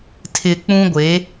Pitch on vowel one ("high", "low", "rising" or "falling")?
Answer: low